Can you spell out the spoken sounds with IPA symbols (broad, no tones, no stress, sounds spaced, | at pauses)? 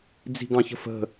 d͡z i̤ ɡ ɑ̃ ç ə̤ f ə̤